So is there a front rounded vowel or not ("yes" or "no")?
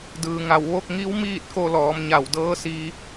no